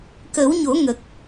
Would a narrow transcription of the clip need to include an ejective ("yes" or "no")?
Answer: no